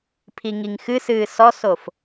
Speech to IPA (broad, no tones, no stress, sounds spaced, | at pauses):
pʰ i ŋ i ŋ x ɨ s ɨː s ɔ s o f